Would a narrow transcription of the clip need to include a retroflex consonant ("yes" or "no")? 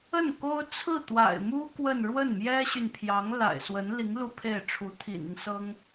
yes